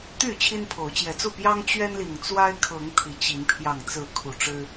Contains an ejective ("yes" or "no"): no